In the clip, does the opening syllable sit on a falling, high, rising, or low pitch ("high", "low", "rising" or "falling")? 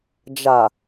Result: low